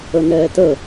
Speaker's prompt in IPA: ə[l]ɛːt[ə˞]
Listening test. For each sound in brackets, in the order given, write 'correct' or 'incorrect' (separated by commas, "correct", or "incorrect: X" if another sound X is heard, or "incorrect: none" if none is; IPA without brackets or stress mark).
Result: incorrect: n, incorrect: ə